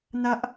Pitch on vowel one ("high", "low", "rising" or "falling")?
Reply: high